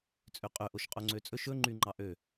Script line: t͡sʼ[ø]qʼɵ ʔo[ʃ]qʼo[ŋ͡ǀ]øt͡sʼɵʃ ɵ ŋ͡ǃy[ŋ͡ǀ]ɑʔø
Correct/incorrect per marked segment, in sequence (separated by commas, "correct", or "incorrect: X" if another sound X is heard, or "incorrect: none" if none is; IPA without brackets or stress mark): correct, correct, correct, incorrect: ŋ͡ǃ